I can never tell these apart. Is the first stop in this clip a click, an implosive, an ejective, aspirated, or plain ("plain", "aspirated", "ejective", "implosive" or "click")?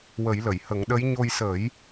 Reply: implosive